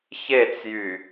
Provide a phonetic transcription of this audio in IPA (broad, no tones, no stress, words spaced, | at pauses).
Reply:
çet͡sjy